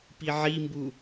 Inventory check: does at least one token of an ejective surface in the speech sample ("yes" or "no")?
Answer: no